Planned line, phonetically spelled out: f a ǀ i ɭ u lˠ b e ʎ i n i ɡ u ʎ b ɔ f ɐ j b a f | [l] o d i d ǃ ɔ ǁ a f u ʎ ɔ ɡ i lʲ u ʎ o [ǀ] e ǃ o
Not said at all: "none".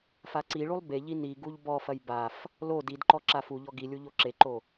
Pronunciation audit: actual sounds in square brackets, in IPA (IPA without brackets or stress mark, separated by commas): l, ǁ